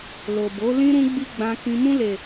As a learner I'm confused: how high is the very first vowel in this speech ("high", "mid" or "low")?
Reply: mid